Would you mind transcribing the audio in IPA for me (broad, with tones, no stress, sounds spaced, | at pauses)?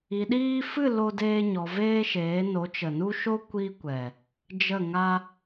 i˧ ɗ iː˦ f ɨ˦˨ l o˦ d eː˦ ɲ ɔ˧ v eː˦ ʃ eː˨˦ n o˨˦ t͡ʃ ə˨ n u˦ ʃ o˦ kʷ i˦ kʷ ɛ˨ | d͡ʒ ə˦˨ ŋ a˦